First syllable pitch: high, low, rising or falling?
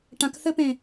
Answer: low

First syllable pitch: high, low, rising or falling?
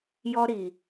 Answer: high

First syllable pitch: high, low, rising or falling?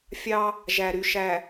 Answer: high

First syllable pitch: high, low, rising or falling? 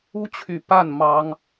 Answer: high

